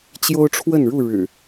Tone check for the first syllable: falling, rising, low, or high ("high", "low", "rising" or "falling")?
high